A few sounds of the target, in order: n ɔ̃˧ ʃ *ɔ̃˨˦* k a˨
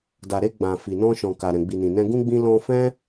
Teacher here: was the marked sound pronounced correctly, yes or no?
no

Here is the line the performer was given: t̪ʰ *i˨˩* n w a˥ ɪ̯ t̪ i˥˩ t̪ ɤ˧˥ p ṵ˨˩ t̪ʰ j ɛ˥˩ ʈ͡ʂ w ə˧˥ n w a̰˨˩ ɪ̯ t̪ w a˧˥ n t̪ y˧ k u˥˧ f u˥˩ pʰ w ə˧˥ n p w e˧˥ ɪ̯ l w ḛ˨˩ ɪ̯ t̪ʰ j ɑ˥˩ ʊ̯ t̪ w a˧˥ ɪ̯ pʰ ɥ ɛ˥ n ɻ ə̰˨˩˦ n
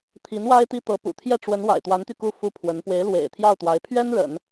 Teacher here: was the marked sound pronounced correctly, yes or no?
no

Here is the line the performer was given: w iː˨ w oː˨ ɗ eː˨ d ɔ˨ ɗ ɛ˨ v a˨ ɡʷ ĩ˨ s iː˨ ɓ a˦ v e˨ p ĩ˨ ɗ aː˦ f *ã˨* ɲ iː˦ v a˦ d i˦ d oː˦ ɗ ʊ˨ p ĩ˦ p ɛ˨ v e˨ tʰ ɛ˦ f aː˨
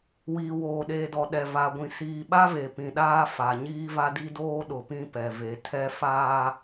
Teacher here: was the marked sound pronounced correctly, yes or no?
no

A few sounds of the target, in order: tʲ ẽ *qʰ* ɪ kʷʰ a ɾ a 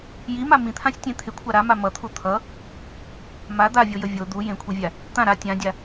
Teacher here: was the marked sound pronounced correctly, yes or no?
no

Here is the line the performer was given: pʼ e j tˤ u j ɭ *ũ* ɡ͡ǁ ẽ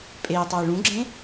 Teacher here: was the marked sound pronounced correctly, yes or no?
yes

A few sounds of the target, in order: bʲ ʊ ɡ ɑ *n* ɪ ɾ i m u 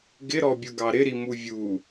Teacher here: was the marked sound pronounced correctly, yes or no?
no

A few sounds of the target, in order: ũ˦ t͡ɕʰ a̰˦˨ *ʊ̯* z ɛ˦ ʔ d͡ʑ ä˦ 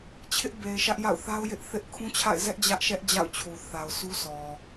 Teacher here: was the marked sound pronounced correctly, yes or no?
no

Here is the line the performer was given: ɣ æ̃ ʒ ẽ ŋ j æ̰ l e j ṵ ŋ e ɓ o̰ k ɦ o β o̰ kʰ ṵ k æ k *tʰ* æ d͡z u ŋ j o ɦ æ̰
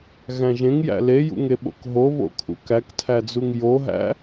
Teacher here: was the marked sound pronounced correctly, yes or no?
yes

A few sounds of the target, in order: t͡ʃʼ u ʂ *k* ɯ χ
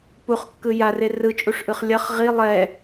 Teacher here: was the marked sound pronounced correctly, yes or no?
no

